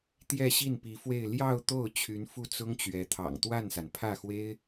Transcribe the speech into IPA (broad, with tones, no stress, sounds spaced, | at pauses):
t̪ j ɛ˥˧ ɕ i˥˩ n p i˧˥ f w e˥˧ ɪ̯ l j ɑ˥˧ ʊ̯ t̪ o˥˩ ʊ̯ t͡ɕʰ y˧˥ n f u˥˩ t͡s ʊ˥ ŋ t͡ɕ ɥ ɛ˧˥ t̪ʰ ɑ̰˨˩ ŋ t̪ w a˥˩ n s a˩ n pʰ ä˥˩ x w e˥ ɪ̯